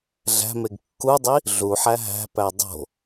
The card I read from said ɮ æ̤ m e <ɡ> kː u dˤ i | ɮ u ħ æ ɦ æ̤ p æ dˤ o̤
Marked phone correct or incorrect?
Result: correct